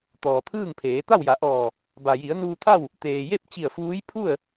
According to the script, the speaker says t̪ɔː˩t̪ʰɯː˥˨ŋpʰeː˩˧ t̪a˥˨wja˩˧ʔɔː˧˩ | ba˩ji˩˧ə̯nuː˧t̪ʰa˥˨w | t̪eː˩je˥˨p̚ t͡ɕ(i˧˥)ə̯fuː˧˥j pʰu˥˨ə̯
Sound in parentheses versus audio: incorrect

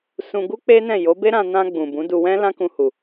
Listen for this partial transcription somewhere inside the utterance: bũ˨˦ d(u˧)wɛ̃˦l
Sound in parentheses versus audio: correct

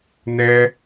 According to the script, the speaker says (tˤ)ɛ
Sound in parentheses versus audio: incorrect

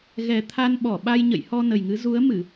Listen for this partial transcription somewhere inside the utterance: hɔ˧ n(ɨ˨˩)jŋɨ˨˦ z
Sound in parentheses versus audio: incorrect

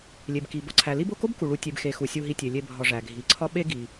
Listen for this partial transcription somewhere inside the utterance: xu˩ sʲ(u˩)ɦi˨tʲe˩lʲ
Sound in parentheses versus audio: incorrect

